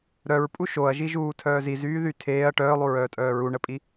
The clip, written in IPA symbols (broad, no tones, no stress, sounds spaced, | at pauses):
ɾ œ ɹ pʼ u ʃ o ɐ̯ ʒ i ʒ uː tʰ œː z i z yː ð y tʰ eː ɐ̯ ʈ œː lˠ u ɹ œː tʼ œː ɹ u ɳ ə pʼ i